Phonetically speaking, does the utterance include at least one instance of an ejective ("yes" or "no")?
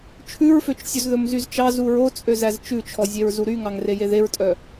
yes